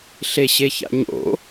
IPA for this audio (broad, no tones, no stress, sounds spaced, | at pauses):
ɬ e ɕ e ç a̰ ɲ o̰